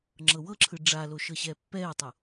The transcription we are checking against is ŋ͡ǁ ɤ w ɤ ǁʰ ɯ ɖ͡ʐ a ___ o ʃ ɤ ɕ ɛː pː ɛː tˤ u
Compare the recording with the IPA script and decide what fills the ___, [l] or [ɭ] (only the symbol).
l